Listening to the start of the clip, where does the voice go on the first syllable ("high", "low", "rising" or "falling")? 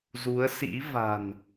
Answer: rising